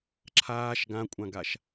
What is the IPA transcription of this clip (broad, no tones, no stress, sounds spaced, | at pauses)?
ǁʰ aː ʃ ɡ ã kʷʼ ã ɡ a ʃ